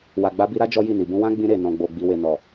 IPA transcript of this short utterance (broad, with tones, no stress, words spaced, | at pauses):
wa˨ɡ͡ba˧ bi˧ɾa˦ d͡ʒɔ˦ji˦˨ni˨ bũ˧wã˦ɡ͡bĩ˧ ɾe˨ nɔ̃˨ɡ͡bo˨ ɡ͡bi˨we˨ nɔ˨